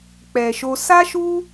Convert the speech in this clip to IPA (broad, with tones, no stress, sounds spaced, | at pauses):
k͡p ɛ˨ ʃ o˧ s a˦ ʃ u˦